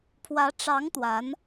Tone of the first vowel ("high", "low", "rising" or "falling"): rising